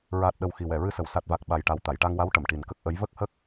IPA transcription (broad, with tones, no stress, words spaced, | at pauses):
ɹaː˨˩t̚ɗə˨˩w xi˨˩wɛ˨˩˨ɹɨ˧sə˨˩w sa˨˩t̚va˨˩k̚ ɓa˨˩jʈa˨˩w t̪a˨˩˨jʈa˧ŋwa˧˥w ʈə˨˩˨mʈi˨˩nkə˦˥k̚ ʔə˧˥j və˦˥k̚hə˦˥k̚